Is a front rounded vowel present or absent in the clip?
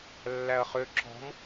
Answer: present